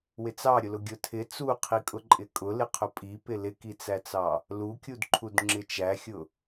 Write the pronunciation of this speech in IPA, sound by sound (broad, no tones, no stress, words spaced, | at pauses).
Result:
wɪt͡sɑ ɾʲʊlʊɡʲʊ tʰɪ t͡suqʰi kʼʊǃʼɪkʼʊ lɪqʰʊpʼipɪ lɪkit͡sæt͡sɑ | lukʲudǃʰud ŋ͡ǁɪt͡ʃæxʲʊ